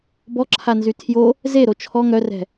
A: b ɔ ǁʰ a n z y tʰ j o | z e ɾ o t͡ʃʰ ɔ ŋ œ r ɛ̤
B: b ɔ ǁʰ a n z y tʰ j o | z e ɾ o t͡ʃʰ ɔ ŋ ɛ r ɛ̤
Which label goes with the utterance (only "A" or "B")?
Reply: A